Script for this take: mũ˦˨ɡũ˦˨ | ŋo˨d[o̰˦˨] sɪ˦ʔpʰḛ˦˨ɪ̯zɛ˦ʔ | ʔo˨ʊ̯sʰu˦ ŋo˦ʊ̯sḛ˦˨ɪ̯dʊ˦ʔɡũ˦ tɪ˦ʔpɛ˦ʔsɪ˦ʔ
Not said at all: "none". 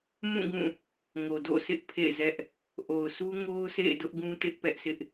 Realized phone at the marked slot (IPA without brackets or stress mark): o̰˦˨